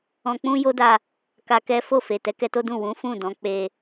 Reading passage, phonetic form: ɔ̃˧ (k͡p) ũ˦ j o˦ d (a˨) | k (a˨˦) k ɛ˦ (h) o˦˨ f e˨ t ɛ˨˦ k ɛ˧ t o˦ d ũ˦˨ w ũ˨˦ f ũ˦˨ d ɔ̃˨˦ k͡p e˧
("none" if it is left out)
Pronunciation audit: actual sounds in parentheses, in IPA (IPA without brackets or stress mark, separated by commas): k͡p, a˧, a˧, f